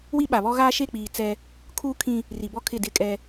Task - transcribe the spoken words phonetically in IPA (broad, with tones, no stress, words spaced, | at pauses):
wi˦ɓa˨βɔ˦ɣaː˦ ʃe˦˨k͡piː˨ t͡sɛ˦ | kʰuː˦kʰĩ˦ | ri˨bɔ˦kʰɪ˦˨dɪ˦˨ kʼɛ˦